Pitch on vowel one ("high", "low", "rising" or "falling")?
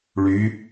rising